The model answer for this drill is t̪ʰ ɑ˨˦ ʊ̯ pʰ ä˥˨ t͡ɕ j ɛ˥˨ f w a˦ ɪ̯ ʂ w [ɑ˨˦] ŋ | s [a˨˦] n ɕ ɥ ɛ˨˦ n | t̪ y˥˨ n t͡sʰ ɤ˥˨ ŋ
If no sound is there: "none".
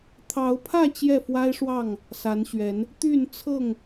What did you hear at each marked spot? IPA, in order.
ɑ˥˨, a˨˦

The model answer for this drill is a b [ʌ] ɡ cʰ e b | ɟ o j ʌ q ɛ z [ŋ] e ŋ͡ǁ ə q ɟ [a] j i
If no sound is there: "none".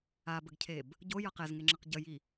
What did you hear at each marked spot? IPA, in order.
ə, ŋ, ə

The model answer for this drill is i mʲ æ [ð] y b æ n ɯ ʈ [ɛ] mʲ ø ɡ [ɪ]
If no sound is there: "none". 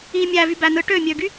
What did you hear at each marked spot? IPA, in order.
v, ø, y

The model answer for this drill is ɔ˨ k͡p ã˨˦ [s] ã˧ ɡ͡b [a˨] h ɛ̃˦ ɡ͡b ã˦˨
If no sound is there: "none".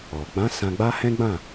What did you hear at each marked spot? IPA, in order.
s, a˦

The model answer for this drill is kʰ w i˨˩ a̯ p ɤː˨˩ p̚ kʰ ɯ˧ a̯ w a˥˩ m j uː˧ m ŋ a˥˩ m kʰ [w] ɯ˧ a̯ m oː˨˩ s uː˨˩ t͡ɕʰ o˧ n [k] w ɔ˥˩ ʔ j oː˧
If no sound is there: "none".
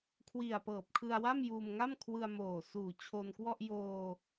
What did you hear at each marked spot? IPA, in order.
w, k

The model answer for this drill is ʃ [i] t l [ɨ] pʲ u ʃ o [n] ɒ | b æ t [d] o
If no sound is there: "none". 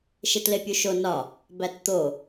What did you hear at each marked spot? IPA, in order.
e, e, n, t̪

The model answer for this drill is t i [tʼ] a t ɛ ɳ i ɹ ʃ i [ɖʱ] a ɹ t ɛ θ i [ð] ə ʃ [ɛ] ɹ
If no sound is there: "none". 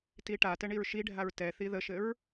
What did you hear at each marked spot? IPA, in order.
ʈ, ɖʱ, ð, ɘ

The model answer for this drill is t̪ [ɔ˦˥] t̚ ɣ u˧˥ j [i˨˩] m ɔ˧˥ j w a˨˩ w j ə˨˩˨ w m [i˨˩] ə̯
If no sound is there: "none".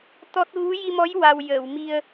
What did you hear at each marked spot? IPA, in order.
ɔ˦˥, i˧, i˧

